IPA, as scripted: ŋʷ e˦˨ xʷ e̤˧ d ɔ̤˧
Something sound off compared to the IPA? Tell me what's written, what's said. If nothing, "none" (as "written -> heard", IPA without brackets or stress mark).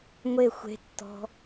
d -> tː